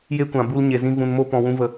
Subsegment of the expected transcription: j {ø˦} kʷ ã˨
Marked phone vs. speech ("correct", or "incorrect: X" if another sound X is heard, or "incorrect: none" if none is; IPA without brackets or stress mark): incorrect: e˦